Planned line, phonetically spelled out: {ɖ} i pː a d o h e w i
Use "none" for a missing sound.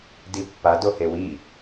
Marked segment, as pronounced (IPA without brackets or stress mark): d